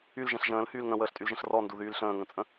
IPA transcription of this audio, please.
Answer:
y l ʒ ɛ̃ ɬ ʒ ə̃ː l h yː l ŋ ə̃ w əː ɬ tʼ y l ʒ ə̃ ɬ r ɔ n d u ð yː l ɬ ə̃ː ŋ ə̃ t͡sʼ ə̃

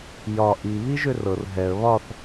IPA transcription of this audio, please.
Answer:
j ɒ ʔ i β i ʒ ʏ r ɤ r ɦ ɛ ə̯ β ɒ θ

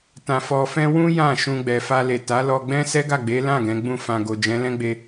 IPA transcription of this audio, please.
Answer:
t ã˧ f ɔ˧ f ɛ̃˦ w ũ˦ j ã˦˨ ʃ ũ˧ ɡ͡b ɛ˨ f a˧ l e˨ t a˨˦ l ɔ˧ ɡ͡b ɛ̃˦ s ɛ˦ ɡ a˦˨ ɡ͡b e˨˦ l ã˦˨ ɡ ɛ̃˨˦ ɡ͡b ũ˦˨ f ã˨ ɡ o˨ d͡ʒ ɛ̃˨˦ l ɛ̃˦ ɡ͡b e˧

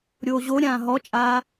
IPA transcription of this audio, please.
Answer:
ɾʲ oː ʑ o ɾʲ ãː ɦ ɔ t͡ʃʼ aː

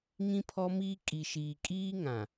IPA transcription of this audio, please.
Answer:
ŋ ĩ˦ pʰ ɔ˦ m iː˦ kʼ i˨ ʃ iː˨ kʼ iː˦ ŋ ã˨

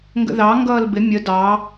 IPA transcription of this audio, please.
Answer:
ŋ ɡ ə̰ ð ɑ ŋ ɡ ʌː l b ɪ mʲ ə d ɑ

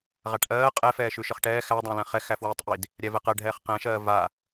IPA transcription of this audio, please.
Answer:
ʁ a ʈ ʔ ɜː qʼ ɛ f ɛː ʃ ʉ ʃ ə χ ʈ ɛː x æ dˤ æ̃ l ɛ̃ χ ɛ x æ f w ɛː tˤ ʔ i d | ɾʲ æ v ɛ q ɜ ɖʱ ɛː χ q ɛ̃ ʃ ɜː v a

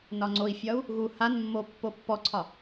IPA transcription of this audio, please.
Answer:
n ɒ ŋ͡ǀ o i̯ fʲ ɒ u̯ | ɣ u h a n mː o pː o pː ɔ ǀʰ ɒ

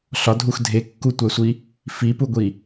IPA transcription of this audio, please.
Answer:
ɬ ɒ dʱ u x dʱ e kː u tʷ æ sʷ i | f i p u ɡʷ i

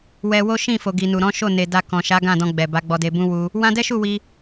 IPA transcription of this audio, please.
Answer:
w ɛ˧ w o˦ ʃ ĩ˦˨ f o˨ ɡ i˨ n u˨ ɾ ɔ̃˨˦ ʃ o˦˨ n e˨ d a˧ k ɔ̃˨ ʃ a˨˦ ɡ ã˦˨ d ɔ̃˧ ɡ͡b ɛ˨ b a˨˦ ɡ͡b ɔ˧ d e˧ b ũ˦ w u˧ | w ã˧ d ɛ˦ ʃ u˦˨ w i˧

